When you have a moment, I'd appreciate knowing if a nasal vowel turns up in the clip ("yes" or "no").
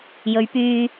no